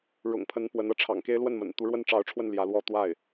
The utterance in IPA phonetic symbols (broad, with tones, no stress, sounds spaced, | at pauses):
ɻ ʊ̰˨˩ ŋ pʰ ə˧˥ n p w ə˧˥ n ɤ˧˥ ʈ͡ʂʰ ɑ̰˨˩ ŋ k e˥ ɪ̯ l w ə˥˩ n m ə̰˨˩ n t̪ u˧˥ ɻ w ə˥ n ʈ͡ʂ ɑ˧˥ ʊ̯ ʈ͡ʂʰ w ə˥˩ n l j ä˧˥ l w ɔ˥ t̪ w a˥˩ ɪ̯